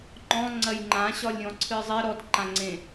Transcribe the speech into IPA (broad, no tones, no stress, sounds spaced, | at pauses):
ŋ͡ǃ ɔ̃ ŋ͡ǀ ɐ j ŋ͡ǃ ã ɕ ɒ lʲ ɾʲ ɔ̃ ǀʰ ɨ zˤ e ɾ ɔ d ǃ ã ŋ͡ǀ ẽ